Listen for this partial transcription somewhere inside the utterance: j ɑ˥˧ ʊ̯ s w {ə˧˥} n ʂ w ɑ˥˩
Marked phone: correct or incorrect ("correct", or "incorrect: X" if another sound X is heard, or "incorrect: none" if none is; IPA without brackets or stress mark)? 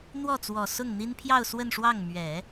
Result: incorrect: ə˥˧